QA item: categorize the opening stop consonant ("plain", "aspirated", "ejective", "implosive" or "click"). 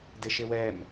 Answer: plain